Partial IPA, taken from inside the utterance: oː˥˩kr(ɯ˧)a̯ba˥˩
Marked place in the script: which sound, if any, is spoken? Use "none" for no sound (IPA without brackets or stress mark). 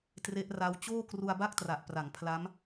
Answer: u˧